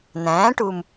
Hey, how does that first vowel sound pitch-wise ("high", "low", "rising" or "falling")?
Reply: rising